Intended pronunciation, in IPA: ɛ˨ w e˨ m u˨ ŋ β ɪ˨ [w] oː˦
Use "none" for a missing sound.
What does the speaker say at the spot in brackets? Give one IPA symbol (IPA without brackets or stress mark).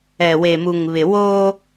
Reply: w